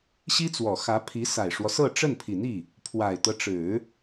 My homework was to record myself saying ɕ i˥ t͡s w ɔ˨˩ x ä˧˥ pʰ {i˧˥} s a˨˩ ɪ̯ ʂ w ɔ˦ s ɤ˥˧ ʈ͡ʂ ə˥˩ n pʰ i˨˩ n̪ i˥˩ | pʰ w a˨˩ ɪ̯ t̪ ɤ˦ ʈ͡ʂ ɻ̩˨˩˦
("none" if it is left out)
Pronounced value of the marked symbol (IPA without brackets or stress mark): i˧˥